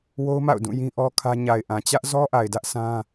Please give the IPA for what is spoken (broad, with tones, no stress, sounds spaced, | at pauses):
w o˦ ʊ̯ m a̰˦˨ ʊ̯ d ũ˦˨ j ĩ˦ ʔ ɔ˦ kʰ ä˦ ɲ a˨ ɪ̯ ʔ ã˨ t͡ɕ ä˦ ʔ z ɔ˦ ʔ a˨ ɪ̯ d ä˦ ʔ s ã˦